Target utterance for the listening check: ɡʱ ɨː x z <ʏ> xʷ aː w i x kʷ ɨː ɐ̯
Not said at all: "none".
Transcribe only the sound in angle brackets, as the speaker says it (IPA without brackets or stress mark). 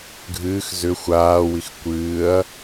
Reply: ʏ